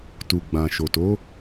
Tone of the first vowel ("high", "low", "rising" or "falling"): low